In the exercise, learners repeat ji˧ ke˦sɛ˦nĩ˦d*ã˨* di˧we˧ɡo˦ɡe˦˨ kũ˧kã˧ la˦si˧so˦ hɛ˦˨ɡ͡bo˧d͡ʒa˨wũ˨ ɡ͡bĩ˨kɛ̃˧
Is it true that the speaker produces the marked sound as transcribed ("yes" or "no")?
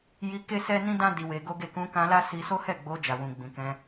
no